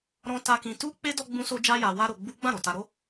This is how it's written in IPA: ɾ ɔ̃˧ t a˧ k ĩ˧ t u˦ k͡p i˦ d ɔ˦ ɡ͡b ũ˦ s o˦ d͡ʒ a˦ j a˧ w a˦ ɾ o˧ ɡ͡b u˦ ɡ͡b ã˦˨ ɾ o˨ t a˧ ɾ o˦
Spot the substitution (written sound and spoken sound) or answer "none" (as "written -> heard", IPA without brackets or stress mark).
i˦ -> e˦